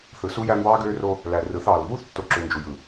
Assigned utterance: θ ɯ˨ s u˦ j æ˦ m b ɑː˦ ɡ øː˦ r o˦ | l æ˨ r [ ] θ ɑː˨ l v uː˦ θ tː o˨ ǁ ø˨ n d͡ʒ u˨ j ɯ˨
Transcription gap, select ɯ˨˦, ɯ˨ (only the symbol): ɯ˨˦